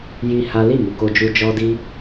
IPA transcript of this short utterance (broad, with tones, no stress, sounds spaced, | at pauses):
j i˦ h a˦ l i˦˨ m u˨ k o˧ d͡ʒ u˧ d͡ʒ ɔ˦ d i˦